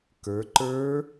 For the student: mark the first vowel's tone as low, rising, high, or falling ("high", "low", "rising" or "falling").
rising